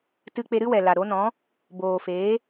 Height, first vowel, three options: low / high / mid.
high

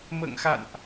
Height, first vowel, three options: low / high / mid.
mid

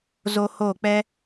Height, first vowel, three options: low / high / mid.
mid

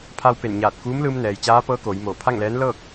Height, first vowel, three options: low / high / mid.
low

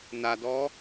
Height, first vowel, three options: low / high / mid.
low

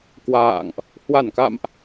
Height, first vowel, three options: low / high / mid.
low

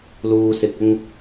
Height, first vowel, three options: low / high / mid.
high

